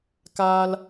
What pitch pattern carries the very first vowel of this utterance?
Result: high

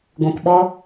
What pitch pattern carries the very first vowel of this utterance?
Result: low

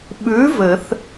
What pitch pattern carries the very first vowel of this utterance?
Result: rising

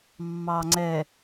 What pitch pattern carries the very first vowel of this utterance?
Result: low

